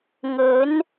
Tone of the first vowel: rising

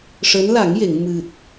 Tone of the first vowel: rising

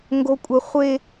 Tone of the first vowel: high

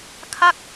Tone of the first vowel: falling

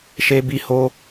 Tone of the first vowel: high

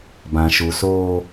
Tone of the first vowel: low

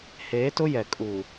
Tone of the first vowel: rising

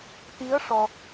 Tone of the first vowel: rising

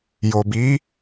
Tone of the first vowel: low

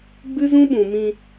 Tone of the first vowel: high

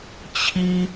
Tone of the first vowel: high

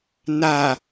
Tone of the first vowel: low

